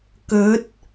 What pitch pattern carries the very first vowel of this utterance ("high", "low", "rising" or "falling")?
rising